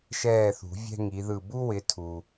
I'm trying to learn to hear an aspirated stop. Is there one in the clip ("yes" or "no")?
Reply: yes